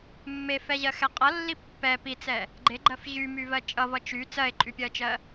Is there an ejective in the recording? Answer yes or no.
yes